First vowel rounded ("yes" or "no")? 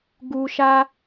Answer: yes